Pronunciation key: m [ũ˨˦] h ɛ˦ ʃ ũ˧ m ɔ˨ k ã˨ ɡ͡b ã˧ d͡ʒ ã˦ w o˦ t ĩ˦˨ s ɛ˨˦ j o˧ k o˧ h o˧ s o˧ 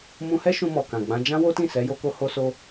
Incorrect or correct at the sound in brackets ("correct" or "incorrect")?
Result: incorrect